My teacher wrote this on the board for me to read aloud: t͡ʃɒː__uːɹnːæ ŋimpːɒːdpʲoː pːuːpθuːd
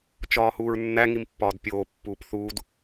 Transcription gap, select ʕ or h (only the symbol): h